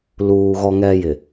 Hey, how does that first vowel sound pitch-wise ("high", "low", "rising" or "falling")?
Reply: low